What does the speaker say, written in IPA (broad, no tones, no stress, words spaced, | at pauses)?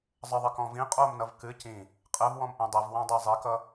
zˤəðˤɘ kɔ̃vĩ qʼomnʌv kɨ cĩ | qʼɘvwɔ̃mʔɛ̃ dˤɘv wãdˤəjzˤikʌ